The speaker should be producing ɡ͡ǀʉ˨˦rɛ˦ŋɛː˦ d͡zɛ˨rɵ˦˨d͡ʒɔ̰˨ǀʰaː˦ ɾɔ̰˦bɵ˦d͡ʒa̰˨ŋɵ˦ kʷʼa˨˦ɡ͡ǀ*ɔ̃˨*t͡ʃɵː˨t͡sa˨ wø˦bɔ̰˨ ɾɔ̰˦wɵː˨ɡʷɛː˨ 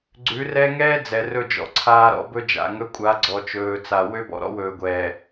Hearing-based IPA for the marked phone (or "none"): ɔ˨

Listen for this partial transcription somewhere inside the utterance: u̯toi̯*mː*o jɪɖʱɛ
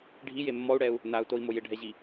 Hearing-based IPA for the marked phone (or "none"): m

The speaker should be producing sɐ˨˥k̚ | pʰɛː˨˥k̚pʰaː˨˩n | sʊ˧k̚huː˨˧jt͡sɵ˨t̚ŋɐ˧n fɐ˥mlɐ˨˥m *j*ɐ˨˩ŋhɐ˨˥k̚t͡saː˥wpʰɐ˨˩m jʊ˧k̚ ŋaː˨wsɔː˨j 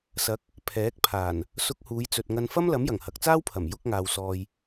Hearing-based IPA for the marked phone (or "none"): j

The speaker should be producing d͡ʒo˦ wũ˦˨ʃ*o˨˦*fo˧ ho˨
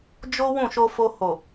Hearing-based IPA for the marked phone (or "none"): o˧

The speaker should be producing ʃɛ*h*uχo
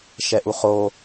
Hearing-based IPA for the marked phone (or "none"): ʔ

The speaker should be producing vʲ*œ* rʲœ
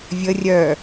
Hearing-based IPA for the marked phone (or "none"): ə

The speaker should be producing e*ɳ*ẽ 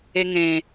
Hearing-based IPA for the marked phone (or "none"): ŋ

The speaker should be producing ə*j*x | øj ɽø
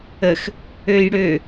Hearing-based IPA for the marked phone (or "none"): none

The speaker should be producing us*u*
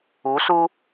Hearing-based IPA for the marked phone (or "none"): u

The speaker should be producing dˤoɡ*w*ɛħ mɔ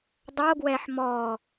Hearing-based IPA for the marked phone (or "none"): w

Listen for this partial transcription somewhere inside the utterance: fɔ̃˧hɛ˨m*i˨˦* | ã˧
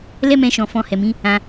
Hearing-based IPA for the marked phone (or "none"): ĩ˨˦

